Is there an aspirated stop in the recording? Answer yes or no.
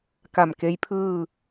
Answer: yes